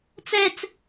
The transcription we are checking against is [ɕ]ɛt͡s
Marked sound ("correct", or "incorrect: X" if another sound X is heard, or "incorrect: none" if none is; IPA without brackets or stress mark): incorrect: t͡s